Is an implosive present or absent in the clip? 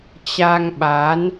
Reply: present